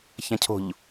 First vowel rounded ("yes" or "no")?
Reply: no